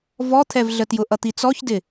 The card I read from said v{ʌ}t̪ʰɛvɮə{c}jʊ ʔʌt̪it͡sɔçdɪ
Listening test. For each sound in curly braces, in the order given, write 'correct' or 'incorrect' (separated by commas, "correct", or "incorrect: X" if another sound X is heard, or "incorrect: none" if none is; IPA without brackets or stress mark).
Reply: incorrect: ɔ, incorrect: t